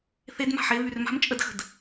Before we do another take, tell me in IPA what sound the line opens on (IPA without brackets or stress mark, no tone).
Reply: θ